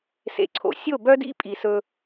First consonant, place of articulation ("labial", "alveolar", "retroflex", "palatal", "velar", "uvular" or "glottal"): alveolar